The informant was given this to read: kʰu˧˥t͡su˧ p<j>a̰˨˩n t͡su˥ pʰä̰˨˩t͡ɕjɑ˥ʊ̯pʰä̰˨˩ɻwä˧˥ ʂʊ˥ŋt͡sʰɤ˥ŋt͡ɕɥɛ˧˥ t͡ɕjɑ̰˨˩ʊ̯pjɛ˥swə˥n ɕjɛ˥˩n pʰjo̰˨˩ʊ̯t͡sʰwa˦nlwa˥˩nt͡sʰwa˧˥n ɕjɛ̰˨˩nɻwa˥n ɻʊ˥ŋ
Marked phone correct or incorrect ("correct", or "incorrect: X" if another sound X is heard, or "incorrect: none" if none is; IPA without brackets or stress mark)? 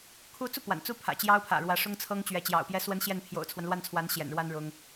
incorrect: w